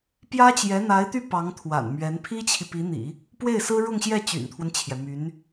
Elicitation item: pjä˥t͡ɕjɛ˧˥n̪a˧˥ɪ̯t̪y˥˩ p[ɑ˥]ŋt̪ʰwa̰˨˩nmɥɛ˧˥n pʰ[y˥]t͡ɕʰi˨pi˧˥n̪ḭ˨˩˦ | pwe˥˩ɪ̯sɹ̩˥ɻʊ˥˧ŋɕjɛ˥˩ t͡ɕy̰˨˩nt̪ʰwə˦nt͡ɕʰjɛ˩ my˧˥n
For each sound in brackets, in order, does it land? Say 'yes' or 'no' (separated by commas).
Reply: no, no